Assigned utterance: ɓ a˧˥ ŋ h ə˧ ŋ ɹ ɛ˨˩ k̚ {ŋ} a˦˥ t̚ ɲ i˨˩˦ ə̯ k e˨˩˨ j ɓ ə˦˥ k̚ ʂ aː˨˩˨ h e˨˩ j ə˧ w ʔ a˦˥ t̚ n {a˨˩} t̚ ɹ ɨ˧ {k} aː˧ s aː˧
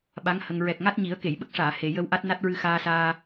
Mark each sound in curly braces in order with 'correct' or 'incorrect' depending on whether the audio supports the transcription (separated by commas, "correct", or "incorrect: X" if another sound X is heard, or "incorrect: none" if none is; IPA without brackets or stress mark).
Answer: correct, incorrect: a˦˥, incorrect: x